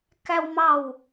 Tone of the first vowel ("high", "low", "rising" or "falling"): high